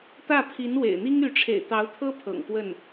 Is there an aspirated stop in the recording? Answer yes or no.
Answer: yes